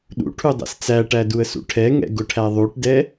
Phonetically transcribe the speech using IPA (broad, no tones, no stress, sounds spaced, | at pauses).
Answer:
ɗ ṵ ʈʰ u dˤ ɛ̰ s t͡s æ ʈ æ d u ə̯ s ṵ ʈʰ ɛ ŋ ɛ̰ ɡ ʊ ʈʰ æ ðˤ u ʈ d ɛ